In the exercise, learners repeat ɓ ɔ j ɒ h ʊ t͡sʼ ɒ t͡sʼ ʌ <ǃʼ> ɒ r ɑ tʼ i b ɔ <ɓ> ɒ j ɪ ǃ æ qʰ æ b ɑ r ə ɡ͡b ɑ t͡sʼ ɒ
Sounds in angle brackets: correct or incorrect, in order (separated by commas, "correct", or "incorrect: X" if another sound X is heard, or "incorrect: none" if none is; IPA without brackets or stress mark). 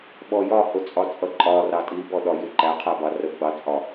correct, incorrect: ɗ